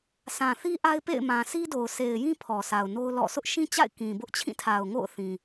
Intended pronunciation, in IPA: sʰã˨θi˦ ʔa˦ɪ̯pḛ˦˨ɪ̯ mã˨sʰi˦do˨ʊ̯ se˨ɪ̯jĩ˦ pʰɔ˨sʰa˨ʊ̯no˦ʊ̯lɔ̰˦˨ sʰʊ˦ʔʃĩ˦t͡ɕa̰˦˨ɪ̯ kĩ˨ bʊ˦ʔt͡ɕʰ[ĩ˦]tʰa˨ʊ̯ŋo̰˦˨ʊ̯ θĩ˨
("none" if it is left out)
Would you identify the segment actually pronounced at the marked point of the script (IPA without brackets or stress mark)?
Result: ĩ˦˨